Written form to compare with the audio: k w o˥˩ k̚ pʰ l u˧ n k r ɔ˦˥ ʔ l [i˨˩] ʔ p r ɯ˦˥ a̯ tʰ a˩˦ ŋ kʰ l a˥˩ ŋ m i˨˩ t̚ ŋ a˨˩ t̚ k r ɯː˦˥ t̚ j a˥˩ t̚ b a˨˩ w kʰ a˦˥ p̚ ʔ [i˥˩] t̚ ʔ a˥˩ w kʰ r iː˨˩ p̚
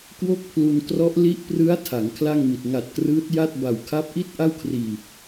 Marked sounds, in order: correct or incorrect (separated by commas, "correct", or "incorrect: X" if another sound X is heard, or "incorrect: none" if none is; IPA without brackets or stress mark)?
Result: incorrect: i˦˥, correct